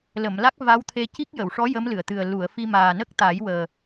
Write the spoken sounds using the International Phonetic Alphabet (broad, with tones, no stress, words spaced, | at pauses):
lə˨˩˨mla˦˥k̚ va˧˥wt̪ʰe˧ ci˦˥k̚jə˨˩˨wʂɔ˧˥ jə˧˥m lɨ˨˩˨ə̯t̪ɨ˨˩ə̯ lu˨˩˨ə̯fi˧ maː˨˩nə˦˥k̚t̪a˨˩˦j wəː˨˩